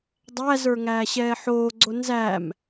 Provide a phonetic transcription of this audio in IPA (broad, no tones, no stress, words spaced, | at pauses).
dˤæzə˞ ŋæːɕɛːħoːɡ͡ǀo nzæm